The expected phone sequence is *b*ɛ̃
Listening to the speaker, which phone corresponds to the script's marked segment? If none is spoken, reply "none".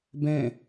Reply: b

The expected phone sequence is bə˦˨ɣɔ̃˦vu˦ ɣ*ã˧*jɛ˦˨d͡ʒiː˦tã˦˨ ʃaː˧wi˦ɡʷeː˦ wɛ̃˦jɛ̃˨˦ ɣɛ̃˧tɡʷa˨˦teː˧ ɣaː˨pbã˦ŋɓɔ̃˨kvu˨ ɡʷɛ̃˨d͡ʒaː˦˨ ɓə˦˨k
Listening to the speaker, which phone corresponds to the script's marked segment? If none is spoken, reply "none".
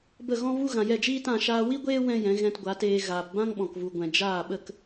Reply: ã˨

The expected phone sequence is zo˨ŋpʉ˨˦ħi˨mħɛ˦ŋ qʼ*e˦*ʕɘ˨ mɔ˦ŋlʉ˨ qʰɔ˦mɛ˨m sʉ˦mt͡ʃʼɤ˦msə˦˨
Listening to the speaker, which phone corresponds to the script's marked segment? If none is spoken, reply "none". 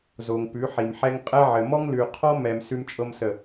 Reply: ɛ˦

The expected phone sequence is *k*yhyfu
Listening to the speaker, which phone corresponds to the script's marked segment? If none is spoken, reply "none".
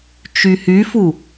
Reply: t͡ʃ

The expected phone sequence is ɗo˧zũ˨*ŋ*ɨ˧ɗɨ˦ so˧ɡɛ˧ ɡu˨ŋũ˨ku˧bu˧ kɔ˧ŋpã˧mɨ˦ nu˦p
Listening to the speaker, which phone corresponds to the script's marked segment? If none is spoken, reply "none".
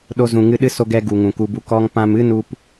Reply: ŋ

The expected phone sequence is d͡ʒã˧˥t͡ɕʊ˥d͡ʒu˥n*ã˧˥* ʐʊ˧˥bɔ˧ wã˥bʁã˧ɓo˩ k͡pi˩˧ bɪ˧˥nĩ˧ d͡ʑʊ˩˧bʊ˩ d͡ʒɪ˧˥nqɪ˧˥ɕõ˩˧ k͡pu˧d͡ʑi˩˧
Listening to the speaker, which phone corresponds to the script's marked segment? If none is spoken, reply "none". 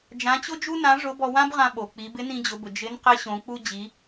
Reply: ã˧˥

